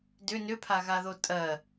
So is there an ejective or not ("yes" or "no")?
yes